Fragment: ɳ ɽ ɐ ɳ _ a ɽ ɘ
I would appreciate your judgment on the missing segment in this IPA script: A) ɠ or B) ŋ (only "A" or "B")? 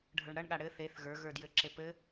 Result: A